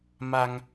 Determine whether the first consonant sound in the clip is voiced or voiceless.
voiced